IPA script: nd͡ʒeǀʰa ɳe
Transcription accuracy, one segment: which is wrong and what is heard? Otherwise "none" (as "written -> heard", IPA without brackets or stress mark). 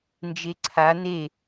ɳ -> n